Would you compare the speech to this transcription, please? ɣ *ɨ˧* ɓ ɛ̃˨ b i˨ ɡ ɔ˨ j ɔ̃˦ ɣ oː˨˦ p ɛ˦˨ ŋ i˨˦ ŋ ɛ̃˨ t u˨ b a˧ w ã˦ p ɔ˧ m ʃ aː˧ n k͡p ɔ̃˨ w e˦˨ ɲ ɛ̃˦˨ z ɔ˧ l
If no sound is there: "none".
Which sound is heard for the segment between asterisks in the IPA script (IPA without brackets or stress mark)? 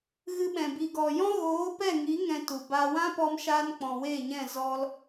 ɨ˧